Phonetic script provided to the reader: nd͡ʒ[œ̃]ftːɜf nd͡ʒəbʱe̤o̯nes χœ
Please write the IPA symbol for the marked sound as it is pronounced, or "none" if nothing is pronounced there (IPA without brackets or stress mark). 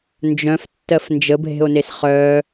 œ̃